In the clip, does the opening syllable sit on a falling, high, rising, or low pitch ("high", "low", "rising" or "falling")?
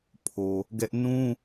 low